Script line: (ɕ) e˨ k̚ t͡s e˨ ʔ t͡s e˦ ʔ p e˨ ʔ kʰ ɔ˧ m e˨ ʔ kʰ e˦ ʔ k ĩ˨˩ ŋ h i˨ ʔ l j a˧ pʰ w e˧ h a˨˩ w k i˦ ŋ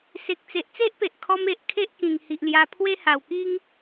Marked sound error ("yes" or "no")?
yes